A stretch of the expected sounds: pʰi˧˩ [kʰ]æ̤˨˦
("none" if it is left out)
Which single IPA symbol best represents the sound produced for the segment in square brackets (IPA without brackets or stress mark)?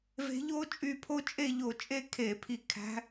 kʰ